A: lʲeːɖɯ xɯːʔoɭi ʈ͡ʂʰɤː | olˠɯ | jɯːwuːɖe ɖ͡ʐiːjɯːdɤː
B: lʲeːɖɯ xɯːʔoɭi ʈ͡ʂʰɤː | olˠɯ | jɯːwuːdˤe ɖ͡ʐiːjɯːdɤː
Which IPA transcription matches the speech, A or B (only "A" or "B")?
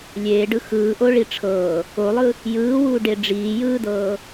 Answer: A